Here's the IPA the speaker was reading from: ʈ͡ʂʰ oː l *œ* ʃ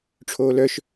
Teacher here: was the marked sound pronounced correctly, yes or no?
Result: yes